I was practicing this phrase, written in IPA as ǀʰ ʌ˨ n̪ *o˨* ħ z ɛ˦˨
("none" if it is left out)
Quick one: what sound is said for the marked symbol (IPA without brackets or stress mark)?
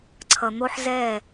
o˦